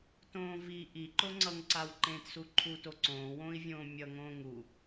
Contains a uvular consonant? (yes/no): no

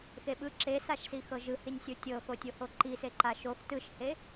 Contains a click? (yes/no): yes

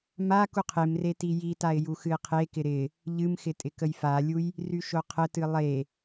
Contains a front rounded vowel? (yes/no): yes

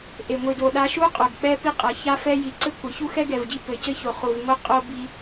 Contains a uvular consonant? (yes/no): yes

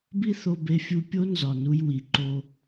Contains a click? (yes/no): yes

